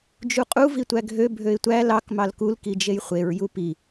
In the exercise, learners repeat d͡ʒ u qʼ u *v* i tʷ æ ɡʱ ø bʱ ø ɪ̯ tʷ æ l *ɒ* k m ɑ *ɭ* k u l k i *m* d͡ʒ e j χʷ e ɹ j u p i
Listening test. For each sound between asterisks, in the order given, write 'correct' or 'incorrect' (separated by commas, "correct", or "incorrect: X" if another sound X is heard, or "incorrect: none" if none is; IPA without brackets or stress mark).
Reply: correct, incorrect: ɑ, incorrect: l, incorrect: none